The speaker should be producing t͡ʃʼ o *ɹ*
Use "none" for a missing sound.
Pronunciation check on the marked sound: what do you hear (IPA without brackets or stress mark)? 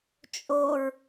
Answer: ɹ